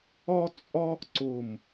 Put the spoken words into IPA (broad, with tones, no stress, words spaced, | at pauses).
ɒ˥t͡sʼɒ˥ | ǀʊː˥˧m